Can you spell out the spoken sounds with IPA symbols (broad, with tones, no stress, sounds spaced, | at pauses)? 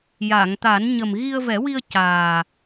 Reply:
j a˨˩˨ ŋ t̪ a˨˩˦ n ɲ ə˨˩ m ɣ i˧ ə̯ v ɛ˨˩˦ w i˧ ə̯ c aː˨˩